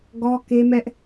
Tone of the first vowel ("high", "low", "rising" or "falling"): high